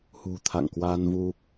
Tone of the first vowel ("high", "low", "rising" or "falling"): low